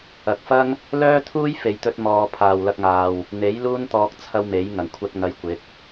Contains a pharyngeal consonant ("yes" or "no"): no